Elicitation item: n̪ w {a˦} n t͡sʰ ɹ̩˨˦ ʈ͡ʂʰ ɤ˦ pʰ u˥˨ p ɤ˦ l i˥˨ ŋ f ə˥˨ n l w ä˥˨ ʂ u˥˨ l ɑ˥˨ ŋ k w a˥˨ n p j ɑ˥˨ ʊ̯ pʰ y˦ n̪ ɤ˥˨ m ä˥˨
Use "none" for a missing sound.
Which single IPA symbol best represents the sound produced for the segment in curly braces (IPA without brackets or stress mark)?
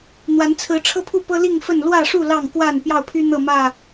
a˨˦